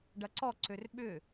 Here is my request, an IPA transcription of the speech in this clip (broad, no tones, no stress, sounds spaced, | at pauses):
ɖ ɐ ǀ ɔ ǀ ø r ɓ ʏ